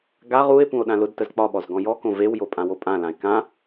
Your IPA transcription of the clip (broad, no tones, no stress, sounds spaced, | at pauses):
ɡ a ʁ u e̯ p ũ o̯ ɗ ã l ʊ d t ə z k͡p ɒ ɓ ɔ z ɡ ɔ̃ j ɔ k õ v e w j o pʼ ã w o pʼ ã l ã e̯ k ã